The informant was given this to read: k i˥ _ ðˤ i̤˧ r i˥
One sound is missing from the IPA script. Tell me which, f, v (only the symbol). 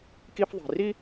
f